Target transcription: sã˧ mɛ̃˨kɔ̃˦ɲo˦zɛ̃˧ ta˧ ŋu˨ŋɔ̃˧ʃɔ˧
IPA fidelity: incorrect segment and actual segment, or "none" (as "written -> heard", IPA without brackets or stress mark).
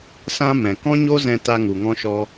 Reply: none